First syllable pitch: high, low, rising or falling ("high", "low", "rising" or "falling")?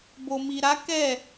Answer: low